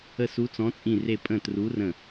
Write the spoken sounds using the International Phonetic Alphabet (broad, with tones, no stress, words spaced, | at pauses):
ə˧˩ su˨˦t͡sɔ̃˨˦t͡sʼĩ˧˩re˧˩ pʼə̃˧˩tru˨˦rə̃˧˩